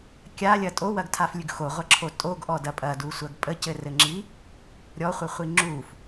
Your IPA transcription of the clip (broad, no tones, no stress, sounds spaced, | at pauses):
kʲ a lʲ ɐ tʼ o w ɐ ɡ tʰ a f lʲ ʉ ɡ x o ʁʷ ɐ ǁʰ o tʼ o ɡ ʔ ɔ d ɐ pʼ ɐ d u sʷ ɐ ɡ pʼ ə c ɘ r ɘ ŋ͡ǁ i | ɾʲ ɔ χʷ ɘ χʷ i ŋ͡ǁ u f